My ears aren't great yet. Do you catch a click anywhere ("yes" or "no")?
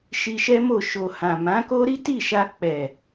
no